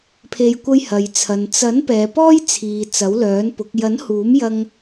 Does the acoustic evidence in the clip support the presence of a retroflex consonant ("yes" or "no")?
no